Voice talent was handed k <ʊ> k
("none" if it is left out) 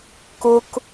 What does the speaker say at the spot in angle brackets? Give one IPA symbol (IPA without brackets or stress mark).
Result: ʊ